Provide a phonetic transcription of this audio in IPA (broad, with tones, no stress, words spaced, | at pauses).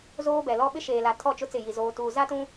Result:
zoː˦bɛ˨lɔ˦ ɓɪ˦ʃeː˨la˨ tʰɔ˦˨t͡ʃʊ˦ t͡sɪ˦˨ji˨ zoː˨tuː˨ za˦tũ˦